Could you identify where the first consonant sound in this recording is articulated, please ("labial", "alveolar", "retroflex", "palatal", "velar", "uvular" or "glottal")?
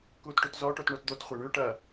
velar